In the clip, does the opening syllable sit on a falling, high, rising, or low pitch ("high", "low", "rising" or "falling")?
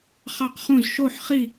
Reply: falling